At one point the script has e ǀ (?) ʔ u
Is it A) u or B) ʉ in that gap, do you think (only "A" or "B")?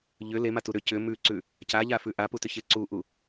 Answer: A